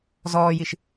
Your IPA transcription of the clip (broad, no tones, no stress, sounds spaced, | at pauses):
z ɔː j i ʃ